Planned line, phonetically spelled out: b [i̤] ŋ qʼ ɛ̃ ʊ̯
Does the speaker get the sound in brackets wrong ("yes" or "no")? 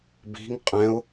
no